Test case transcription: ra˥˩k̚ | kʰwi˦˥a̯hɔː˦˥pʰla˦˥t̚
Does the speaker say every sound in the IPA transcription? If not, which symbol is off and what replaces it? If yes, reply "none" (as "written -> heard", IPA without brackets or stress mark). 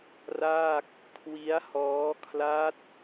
pʰ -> kʰ